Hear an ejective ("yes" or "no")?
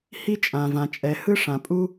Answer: yes